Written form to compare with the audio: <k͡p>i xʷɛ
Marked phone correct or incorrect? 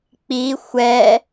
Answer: correct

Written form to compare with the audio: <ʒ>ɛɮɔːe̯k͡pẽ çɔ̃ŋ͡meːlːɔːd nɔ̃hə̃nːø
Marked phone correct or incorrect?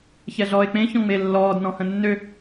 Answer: incorrect: ç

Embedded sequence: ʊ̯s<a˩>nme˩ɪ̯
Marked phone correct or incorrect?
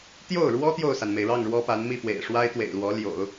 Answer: correct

